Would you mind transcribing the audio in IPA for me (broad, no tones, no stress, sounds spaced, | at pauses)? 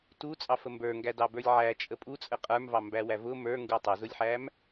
t u t͡sʼ ɑ f ə m b ə˞ ŋ ɡ æ d ɑ b ə˞ lʲ ʕ æ t͡ʃʼ ə pʼ u t͡sʼ ə qʼ ə˞ m v ɑ m b æ w æ v ʊ m ə˞ ŋ ɡ u tˤ ʊ z ʊ lʲ ħ æ m